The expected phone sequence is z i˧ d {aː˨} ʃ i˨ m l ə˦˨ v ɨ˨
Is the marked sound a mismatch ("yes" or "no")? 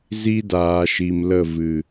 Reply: no